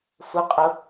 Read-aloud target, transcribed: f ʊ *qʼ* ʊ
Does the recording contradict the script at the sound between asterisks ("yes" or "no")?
no